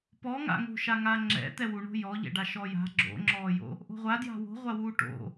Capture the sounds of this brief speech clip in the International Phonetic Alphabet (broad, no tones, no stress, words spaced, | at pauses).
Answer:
pɔŋa̰ŋo̤ʃa ŋaŋ͡ǁɛ̰ t̪ɛwu ɳo̤jɔʎɛ̰ɖa ʃɔja̤ ɡ͡ǁo̰ŋ͡ǁɔːjo̰ | ʔo̤ʁʷadja̤ wo̤ʁʷawuː ʈo̰